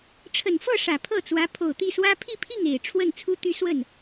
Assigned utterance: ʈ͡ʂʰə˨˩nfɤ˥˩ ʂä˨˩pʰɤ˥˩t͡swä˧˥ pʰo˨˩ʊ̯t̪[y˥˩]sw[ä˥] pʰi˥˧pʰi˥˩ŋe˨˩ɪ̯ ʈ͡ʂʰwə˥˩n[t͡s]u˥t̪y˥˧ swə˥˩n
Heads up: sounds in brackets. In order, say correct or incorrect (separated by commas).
incorrect, correct, incorrect